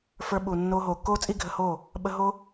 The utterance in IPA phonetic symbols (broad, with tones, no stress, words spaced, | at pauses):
fə˞˧ɓu˨ nːo˧ ɦoː˨kːoː˦t͡sʼi˦ɡʱə˧ ho˦˨ | ɓə˧ɦo˦